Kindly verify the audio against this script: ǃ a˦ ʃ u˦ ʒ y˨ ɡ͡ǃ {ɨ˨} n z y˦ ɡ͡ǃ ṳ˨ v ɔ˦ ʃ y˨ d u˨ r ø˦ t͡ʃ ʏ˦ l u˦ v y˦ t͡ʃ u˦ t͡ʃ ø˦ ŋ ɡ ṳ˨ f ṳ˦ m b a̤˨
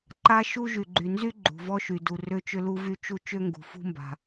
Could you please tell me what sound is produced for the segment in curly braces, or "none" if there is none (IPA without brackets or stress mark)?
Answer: y˨